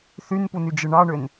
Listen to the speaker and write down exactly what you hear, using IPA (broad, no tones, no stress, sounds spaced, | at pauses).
θ y n p u n y d͡ʒ ɯ ɳ ɑ ɳ ø n